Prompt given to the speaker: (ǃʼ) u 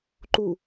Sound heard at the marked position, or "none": ǃ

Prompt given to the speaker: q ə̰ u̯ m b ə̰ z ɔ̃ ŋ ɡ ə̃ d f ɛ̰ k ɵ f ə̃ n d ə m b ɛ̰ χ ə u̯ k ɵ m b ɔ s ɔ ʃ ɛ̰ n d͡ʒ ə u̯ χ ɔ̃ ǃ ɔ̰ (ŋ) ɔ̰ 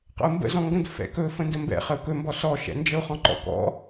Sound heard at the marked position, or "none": k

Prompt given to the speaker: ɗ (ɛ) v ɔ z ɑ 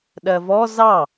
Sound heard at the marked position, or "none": ɜ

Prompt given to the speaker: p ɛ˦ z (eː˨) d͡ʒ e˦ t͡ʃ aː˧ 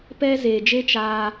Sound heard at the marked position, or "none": eː˨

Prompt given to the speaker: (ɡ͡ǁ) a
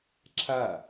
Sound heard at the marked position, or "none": ǁʰ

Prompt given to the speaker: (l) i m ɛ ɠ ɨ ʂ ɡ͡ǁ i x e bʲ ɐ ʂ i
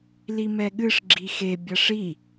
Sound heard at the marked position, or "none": l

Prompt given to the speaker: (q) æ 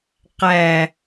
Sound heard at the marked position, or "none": q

